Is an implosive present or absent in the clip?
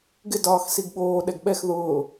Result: present